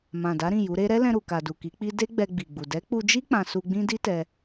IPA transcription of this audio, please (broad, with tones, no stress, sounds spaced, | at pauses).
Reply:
m ã˨ d a˨˦ ɾ ĩ˦˨ j u˨˦ ɾ e˦ ɾ ɛ˦ l ɛ̃˧ ɾ u˨ k a˨ d u˨ k i˨˦ k͡p i˦ d e˦ ɡ͡b ɛ˧ ɡ͡b i˨ ɡ͡b u˨ d ɛ˨˦ k͡p u˧ d͡ʒ i˦ k͡p ã˧ s u˧ ɡ͡b ĩ˦ d i˦ t ɛ˧